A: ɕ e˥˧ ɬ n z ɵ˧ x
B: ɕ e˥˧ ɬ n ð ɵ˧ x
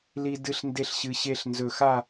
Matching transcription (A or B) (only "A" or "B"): A